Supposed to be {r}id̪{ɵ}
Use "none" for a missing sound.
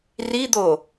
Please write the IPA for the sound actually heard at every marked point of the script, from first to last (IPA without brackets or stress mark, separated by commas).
r, o